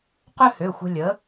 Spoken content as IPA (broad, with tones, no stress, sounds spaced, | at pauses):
q ø˥ h ø˩˧˩ xʷ ə̤˧ lʲ ə˩˥